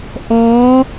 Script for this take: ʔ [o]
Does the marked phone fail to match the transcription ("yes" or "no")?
yes